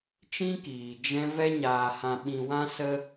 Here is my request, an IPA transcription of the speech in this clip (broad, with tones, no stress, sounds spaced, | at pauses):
t͡ʃ ĩ˦ k iː˨ d͡ʒ ɛ̃˧ v ɛ˧ ɲ aː˨ h ã˨ ɓ ĩ˨ w ã˧ s ə˧